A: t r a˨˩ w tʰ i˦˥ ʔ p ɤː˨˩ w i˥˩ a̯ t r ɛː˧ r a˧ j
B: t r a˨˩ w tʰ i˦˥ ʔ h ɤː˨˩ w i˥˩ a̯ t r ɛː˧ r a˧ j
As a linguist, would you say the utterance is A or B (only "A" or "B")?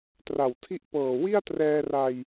A